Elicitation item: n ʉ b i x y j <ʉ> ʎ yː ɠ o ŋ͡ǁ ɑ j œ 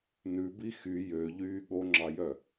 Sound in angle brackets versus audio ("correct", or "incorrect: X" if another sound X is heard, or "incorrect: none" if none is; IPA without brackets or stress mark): incorrect: ø